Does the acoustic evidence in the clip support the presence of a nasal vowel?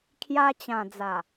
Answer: yes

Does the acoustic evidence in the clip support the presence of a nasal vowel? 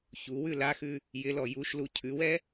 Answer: no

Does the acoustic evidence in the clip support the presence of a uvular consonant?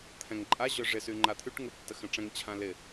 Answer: no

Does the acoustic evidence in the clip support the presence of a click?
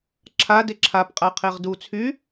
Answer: yes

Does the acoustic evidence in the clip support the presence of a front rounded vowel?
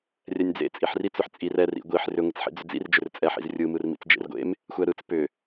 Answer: yes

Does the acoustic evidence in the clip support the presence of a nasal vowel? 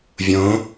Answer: yes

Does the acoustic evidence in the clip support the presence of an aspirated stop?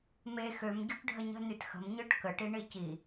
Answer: no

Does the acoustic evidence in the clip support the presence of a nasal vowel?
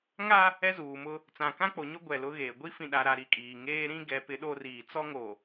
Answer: yes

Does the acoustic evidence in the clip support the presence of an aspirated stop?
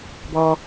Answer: no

